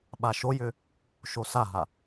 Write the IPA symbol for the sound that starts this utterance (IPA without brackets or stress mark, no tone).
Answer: ɓ